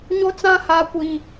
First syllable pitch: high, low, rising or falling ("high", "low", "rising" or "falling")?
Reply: high